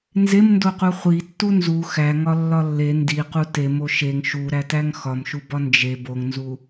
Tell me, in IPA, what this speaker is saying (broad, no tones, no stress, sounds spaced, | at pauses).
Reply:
n z e m n d o q u χʷ i tː u n z u x æ ŋ ɒ lː ɒ lː e n d i q u t e m o ʃ e ŋ ʃ u ɾ æ t æ ŋ x ɒ m ʃ u b ɒ n d͡ʒ e b o ŋ n z u